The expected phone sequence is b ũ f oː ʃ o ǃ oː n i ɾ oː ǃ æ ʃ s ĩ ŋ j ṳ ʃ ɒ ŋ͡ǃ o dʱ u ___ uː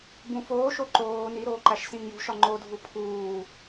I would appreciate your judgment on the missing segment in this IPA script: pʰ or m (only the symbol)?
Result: pʰ